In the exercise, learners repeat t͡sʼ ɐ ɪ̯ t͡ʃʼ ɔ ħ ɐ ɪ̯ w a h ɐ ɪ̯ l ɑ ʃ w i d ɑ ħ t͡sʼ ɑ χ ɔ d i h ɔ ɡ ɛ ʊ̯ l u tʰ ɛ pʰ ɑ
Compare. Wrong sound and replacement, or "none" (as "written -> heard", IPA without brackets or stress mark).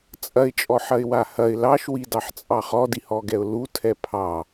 none